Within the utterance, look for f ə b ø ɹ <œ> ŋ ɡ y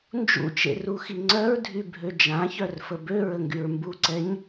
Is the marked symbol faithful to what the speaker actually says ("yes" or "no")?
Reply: no